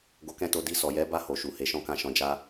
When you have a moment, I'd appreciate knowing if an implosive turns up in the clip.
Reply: no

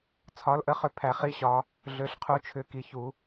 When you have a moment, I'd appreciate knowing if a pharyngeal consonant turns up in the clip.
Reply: no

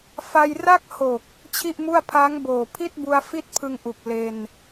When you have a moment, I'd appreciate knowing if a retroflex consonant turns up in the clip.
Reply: no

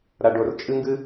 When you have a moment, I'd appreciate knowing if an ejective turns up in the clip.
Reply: yes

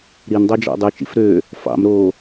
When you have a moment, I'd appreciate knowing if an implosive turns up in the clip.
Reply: no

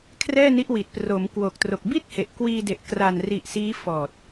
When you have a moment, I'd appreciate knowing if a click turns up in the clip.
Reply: no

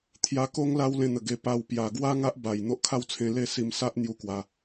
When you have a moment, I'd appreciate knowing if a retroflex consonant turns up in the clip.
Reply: no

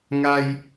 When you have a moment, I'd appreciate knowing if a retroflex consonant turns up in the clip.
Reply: no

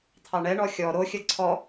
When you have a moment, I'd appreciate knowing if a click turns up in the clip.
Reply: yes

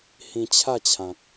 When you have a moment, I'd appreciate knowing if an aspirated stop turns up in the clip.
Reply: yes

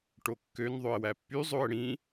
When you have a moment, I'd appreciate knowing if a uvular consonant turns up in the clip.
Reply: no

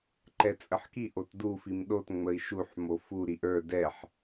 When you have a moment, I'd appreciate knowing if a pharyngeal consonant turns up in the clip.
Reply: yes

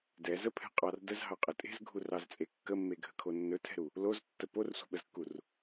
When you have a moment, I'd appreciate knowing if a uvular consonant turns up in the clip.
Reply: yes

